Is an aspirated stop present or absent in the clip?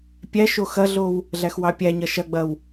absent